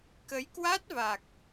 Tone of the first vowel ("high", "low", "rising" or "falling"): rising